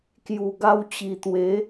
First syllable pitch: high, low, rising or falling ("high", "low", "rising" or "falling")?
low